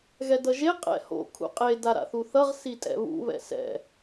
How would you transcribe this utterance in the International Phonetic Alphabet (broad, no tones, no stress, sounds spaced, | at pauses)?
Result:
ɣ ɛ d ʌ ʒ e qʼ ɛ̰ h o̰ kʰ ṵ qʼ e d a ɾ a̰ θ u θ ʌ ʁ s i tʼ ɛ̰ β ṵ β ɛ̰ s ɛ̰